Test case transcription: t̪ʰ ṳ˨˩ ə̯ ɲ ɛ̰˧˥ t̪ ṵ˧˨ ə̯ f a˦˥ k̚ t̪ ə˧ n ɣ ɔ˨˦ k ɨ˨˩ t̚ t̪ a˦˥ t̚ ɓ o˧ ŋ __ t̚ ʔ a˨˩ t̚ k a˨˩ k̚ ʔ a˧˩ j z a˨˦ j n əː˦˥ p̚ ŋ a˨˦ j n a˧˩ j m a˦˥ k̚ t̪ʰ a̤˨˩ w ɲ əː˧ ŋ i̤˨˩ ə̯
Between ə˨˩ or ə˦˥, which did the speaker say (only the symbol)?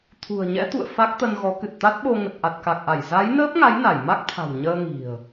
ə˨˩